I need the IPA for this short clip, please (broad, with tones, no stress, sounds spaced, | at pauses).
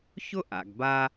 ç ʊ˥ ʔ a̰˨ ɡ b a˦